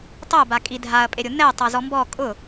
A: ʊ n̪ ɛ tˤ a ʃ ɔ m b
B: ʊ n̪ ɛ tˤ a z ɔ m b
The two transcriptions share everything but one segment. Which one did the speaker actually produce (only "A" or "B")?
B